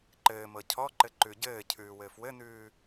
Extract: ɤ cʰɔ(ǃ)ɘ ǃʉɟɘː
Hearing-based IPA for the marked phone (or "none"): ǃ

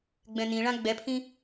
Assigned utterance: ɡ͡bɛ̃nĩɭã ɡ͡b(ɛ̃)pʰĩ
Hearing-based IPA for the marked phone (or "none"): ɛ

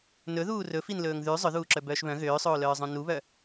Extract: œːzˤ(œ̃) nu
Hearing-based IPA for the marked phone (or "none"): œ̃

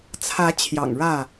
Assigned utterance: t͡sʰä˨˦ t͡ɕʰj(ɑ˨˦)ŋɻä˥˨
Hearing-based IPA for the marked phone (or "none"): ɑ̰˨˩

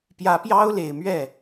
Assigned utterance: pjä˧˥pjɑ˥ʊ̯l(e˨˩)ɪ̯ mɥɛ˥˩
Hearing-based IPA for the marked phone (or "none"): e˨˩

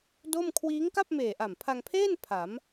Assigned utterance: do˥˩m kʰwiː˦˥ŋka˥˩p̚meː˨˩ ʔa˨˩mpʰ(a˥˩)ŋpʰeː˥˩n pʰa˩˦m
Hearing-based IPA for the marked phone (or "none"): a˧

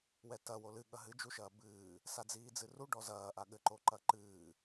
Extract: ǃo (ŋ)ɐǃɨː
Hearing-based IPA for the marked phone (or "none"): ǃ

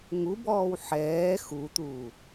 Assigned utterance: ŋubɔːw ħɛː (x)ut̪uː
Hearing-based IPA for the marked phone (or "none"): x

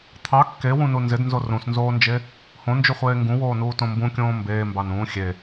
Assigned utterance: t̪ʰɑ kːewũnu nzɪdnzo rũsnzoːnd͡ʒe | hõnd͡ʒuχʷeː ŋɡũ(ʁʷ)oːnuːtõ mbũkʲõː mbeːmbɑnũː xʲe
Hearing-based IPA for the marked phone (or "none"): w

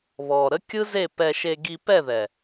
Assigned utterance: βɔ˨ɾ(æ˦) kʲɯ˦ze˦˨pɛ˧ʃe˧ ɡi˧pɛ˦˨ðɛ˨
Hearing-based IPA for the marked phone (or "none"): ə˦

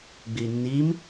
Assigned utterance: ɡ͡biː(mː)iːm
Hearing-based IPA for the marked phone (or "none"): nː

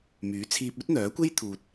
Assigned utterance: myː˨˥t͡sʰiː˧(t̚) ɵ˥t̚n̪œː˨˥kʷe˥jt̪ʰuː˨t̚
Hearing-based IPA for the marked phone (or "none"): p̚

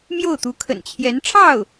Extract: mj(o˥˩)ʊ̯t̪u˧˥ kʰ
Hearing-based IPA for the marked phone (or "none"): o˥˩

